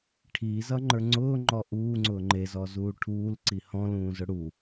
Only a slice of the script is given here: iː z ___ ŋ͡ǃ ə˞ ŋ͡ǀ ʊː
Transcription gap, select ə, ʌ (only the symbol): ʌ